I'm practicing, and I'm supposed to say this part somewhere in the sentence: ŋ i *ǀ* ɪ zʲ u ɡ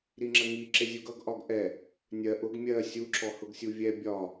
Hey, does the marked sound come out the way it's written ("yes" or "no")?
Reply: no